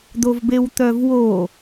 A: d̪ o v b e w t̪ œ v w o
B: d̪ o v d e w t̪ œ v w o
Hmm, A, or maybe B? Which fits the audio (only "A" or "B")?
A